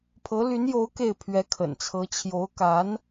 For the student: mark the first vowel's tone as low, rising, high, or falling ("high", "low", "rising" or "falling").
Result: rising